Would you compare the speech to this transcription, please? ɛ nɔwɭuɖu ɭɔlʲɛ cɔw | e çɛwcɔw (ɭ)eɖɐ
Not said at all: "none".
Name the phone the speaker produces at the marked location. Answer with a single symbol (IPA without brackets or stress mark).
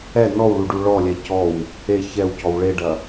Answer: ɭ